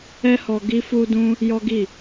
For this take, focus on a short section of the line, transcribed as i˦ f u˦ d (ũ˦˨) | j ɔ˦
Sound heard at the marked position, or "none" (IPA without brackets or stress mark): ũ˦